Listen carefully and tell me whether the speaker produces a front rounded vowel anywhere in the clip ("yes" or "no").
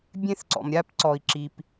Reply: no